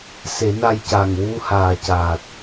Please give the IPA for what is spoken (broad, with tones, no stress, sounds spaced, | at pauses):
s e˨˩˦ n a˧ j c a˨˩ ŋ w u˧ h aː˨˩ c a˨˩ t̚